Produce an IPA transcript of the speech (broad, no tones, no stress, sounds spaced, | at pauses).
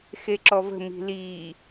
x e ǁ ɔ v ə̤ m i̤ l iː